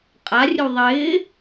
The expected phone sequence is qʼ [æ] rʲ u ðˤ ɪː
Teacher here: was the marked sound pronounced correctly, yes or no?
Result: no